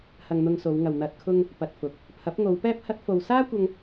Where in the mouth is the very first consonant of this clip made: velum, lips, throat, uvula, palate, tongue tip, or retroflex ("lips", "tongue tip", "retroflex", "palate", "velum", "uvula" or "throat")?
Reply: throat